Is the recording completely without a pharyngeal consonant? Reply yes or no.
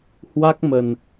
yes